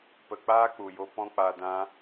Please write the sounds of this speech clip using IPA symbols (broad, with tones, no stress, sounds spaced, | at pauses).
p ə˧ k͡p aː˦ k͡p u˨ j o˧ p ɔ̃˧ k͡p a˨ d ã˧